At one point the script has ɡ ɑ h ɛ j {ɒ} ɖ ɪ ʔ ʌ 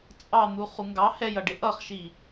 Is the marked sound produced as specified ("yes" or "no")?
no